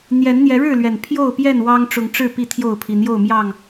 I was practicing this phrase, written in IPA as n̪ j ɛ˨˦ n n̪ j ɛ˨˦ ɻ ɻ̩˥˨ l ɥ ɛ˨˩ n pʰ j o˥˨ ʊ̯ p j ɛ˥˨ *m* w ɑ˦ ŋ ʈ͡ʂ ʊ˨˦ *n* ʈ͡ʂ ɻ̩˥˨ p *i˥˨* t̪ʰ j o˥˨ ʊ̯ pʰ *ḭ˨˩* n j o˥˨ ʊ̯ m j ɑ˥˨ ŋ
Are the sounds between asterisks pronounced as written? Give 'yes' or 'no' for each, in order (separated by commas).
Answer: no, no, yes, no